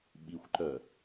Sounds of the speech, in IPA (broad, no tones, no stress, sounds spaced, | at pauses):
ɓ i xʷ ǃ œ